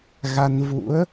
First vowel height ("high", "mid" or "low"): low